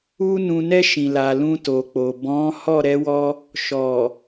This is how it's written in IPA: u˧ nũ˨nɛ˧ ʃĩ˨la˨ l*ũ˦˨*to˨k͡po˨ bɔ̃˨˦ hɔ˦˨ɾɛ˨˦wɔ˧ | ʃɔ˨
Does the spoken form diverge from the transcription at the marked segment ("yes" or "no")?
yes